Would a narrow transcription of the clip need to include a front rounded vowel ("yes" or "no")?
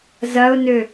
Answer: yes